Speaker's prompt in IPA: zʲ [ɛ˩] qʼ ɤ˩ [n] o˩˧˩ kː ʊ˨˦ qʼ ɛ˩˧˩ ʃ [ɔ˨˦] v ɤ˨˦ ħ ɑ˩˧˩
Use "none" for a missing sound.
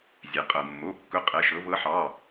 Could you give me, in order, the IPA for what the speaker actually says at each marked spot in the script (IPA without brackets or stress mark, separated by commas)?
ɛ˩, mː, ɤ˨˦